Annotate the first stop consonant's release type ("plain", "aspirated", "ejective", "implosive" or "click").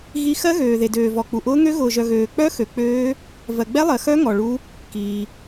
plain